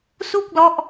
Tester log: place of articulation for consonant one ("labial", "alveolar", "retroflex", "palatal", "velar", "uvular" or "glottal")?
alveolar